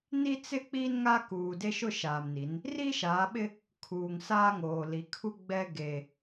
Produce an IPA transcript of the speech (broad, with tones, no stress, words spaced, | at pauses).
ni˦t͡sɪ˦ k͡piː˦nŋa˦ kuː˨de˦ ʃʊ˦˨ʃaː˨mni˨˦n | ri˦ʃaː˨˦ɓɪ˦ | kʰuː˨ŋsaː˦ŋoː˨li˨˦ kʰu˦ɡ͡bɛ˦ ɡe˦